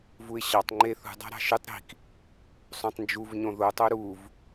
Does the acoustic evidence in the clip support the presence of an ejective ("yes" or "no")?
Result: no